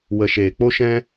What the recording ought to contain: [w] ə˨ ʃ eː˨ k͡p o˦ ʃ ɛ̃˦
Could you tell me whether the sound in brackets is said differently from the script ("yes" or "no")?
no